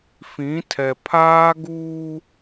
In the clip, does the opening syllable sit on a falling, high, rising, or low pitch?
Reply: rising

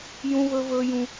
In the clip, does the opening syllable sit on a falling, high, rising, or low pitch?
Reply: high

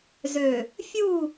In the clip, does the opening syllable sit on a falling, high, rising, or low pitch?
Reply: low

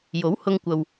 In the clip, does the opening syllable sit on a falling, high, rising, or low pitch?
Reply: rising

